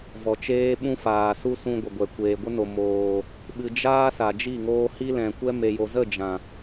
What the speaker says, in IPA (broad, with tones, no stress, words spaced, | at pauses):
vɔ˨t͡ʃeː˦ɓũ˦faː˨ su˧ sũ˧ɡʷə˨ɡʷɛ˨ kʷeː˨ɡʷə˦no˨ moː˨ | ɓɨ˧ d͡ʒaː˦ sa˨d͡ʒi˦˨ŋoː˧ hi˦lɛ̃˨kʷɛ˦ me˨jo˨zə˦˨ d͡ʒã˨